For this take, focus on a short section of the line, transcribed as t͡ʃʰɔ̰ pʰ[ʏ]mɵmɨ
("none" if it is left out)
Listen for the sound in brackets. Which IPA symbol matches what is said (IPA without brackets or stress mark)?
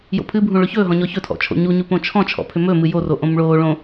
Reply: ʏ